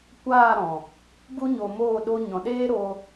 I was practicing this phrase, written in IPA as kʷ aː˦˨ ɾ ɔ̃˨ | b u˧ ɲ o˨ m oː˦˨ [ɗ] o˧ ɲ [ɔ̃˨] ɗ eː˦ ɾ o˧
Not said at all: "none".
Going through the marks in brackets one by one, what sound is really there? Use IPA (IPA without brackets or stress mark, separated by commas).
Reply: ɗ, ɔ̃˨